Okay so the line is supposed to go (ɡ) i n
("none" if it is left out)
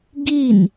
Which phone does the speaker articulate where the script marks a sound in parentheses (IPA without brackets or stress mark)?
ɡ